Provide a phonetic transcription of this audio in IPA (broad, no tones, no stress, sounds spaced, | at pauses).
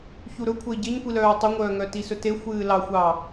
ç u ɾ ɵ kʷʰ ə i̯ ɟ e ɲ kʷ i l œː tˤ ə ŋʷ œː ŋ œ t i s ɵ t e xʷ ɨː l ɑ xʷ ɑ